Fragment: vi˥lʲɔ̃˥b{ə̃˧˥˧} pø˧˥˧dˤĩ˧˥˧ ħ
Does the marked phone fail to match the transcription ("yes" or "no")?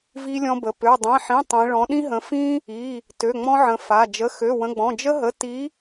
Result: yes